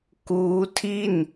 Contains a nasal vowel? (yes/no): no